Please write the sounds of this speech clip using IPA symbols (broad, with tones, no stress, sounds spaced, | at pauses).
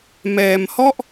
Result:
m ɛː˧ m h ɔ˥˩ ʔ